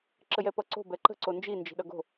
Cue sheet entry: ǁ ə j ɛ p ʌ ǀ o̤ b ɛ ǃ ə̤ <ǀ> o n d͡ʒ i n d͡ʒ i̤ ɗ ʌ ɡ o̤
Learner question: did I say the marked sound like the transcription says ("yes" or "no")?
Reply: yes